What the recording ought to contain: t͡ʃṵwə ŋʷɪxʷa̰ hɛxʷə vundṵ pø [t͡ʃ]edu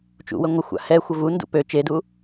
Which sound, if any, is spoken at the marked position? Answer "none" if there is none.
t͡ʃ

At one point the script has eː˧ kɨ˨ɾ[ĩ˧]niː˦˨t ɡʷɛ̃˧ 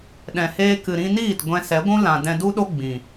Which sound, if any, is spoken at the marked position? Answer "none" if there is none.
ĩ˧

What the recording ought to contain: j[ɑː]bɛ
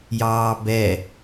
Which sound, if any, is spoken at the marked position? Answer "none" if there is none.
ɑː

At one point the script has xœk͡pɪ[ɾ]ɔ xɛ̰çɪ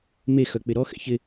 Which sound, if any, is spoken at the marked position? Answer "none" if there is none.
ɾ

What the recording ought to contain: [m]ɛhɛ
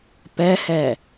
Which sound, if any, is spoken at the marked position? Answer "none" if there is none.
p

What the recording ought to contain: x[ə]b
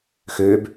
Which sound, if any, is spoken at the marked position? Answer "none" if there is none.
ø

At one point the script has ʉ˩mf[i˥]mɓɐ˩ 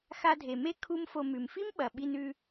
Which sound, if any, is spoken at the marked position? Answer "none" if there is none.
i˥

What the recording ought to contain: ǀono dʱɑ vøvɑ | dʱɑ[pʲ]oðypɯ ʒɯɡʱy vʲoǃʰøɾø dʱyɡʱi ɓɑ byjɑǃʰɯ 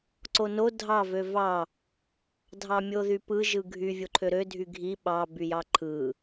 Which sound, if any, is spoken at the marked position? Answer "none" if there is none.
mʲ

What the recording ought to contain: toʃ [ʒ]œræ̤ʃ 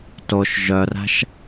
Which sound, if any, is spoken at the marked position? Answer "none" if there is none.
ʒ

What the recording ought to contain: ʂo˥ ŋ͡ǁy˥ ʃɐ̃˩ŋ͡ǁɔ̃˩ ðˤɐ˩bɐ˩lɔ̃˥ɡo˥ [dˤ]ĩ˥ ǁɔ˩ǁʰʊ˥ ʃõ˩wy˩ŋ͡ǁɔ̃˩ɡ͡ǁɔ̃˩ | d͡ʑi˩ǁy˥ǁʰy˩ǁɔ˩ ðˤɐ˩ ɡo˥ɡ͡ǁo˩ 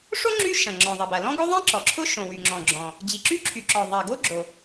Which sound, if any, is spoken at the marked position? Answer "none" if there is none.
ðˤ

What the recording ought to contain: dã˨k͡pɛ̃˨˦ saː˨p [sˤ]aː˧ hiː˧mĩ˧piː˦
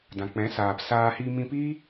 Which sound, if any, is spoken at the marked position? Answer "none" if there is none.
s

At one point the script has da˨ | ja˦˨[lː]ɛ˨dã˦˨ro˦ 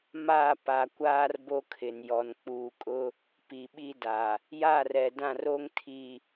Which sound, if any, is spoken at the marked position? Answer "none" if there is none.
r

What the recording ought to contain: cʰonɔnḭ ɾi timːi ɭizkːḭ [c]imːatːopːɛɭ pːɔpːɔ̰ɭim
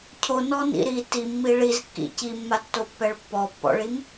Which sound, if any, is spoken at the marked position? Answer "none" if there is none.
c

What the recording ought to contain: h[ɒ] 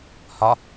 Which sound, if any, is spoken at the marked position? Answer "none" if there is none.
ɒ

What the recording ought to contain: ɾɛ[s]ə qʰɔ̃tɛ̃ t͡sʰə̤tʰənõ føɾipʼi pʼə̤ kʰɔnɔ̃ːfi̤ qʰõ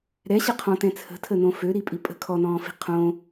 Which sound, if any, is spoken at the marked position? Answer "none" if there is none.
ɕ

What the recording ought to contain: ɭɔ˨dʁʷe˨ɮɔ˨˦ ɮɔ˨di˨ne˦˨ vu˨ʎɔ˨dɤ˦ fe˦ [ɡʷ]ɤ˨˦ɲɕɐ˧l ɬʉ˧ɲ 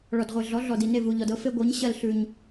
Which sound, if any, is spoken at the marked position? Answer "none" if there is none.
ɡʷ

